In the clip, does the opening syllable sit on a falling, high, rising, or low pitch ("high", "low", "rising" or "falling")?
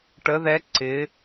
rising